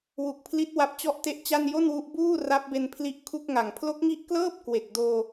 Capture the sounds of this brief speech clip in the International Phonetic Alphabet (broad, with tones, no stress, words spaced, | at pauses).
wu˨˩k̚pʰli˦˥t̚ wa˦˥p̚t͡ɕɔ˥˩ʔte˥˩ʔt͡ɕa˥˩n jo˥˩nwu˦˥ʔ buː˥˩ ra˦˥p̚be˧npʰli˦˥ʔ kʰu˥˩k̚ŋa˨˩ŋ pʰlo˦˥k̚ŋi˦˥ʔklɤː˥˩p̚ kwe˨˩k̚doː˧